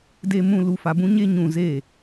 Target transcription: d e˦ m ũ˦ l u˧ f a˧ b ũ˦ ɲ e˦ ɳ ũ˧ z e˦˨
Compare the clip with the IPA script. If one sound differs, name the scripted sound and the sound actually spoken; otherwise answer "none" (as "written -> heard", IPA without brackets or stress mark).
ɳ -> ɲ